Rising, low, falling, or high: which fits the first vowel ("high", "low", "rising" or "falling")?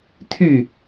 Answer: falling